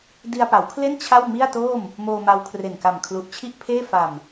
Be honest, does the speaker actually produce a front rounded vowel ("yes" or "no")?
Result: no